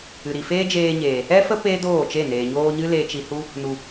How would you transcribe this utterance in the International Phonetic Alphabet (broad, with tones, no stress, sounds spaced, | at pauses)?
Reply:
ɨ˨ ɾ i˨ f eː˦ d͡ʒ eː˧ ɲ eː˨ | ɛ˦ f ə˦ p eː˦ d oː˦˨ t͡ʃ e˦˨ n eː˨ ɲ oː˧ ɲ ɨ˦ l e˧ t͡ʃ i˧ h u˦ | n u˨